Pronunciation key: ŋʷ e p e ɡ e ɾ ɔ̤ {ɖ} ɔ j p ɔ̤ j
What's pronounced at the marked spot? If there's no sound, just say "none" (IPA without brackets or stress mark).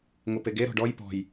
ɖ